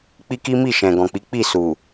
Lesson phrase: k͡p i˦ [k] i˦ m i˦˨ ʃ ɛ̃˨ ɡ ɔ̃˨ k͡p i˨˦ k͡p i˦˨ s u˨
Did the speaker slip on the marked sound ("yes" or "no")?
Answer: no